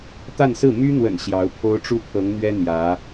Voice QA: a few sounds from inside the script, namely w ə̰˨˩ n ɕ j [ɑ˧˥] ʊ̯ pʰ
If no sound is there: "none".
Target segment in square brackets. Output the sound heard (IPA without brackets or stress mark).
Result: ɑ˧˥